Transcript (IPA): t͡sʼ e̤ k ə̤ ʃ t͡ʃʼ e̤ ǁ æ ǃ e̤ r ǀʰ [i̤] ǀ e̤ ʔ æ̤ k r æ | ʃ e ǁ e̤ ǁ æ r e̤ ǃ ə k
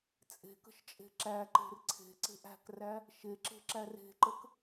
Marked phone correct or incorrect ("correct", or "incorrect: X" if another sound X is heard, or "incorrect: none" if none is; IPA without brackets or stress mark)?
incorrect: e̤